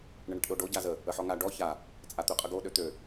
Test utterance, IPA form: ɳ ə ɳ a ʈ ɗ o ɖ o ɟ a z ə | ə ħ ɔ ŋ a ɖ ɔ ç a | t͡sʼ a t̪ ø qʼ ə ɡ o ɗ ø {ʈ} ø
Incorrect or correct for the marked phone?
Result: incorrect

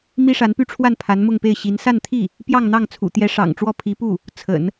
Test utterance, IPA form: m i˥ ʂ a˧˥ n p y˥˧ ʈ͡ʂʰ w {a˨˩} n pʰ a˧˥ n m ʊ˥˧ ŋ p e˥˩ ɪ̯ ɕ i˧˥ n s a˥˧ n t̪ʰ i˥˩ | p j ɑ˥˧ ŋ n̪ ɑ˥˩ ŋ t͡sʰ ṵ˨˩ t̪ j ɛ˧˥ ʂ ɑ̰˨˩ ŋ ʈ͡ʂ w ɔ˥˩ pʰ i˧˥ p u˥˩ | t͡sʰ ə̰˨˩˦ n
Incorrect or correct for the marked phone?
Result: incorrect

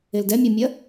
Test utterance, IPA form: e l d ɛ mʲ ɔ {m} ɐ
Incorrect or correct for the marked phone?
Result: incorrect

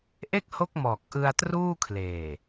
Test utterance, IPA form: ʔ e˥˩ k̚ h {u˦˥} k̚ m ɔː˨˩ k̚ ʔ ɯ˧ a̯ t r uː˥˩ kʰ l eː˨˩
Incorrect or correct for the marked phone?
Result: incorrect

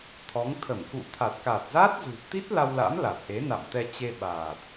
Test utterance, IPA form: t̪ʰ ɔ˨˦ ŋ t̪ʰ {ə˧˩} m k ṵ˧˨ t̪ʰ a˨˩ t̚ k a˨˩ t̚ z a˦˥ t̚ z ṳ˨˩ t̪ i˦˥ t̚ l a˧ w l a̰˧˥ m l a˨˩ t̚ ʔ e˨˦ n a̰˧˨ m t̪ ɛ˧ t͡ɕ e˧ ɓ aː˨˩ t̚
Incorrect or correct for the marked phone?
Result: correct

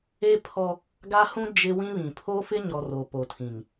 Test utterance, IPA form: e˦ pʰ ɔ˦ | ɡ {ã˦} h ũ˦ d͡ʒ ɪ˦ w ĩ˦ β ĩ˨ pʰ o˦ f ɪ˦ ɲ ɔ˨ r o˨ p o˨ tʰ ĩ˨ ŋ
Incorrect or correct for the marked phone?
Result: incorrect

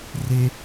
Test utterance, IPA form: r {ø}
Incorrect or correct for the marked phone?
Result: incorrect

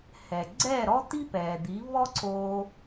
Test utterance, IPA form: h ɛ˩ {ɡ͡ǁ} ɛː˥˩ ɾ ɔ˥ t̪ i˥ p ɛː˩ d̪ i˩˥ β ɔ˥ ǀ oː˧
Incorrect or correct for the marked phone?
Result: incorrect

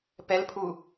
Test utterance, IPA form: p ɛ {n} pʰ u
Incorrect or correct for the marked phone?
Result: incorrect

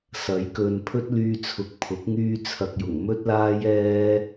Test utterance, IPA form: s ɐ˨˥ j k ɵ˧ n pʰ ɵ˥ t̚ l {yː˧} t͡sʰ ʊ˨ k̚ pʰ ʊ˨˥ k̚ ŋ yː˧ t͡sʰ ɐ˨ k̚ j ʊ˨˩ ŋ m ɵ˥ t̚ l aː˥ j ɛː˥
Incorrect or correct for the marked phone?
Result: correct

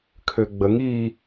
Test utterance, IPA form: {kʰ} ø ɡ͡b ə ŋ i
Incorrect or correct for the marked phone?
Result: correct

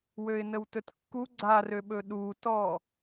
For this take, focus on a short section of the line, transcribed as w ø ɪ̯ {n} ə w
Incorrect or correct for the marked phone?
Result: correct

